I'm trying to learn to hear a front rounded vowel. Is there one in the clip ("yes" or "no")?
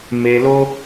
no